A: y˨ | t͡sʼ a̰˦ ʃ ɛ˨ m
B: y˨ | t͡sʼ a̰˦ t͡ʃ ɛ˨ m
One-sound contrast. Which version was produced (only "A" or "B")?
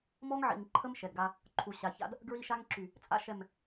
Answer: A